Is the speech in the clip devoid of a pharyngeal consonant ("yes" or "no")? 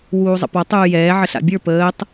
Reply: no